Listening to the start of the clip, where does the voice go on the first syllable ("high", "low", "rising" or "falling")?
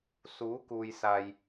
rising